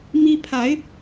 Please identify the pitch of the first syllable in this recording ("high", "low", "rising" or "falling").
high